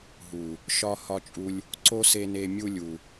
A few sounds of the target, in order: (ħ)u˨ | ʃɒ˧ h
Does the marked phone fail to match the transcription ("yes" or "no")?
yes